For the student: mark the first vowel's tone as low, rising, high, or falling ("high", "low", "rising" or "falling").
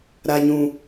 low